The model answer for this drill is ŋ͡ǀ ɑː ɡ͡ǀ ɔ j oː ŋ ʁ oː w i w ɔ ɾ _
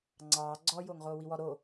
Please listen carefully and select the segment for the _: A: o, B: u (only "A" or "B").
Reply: A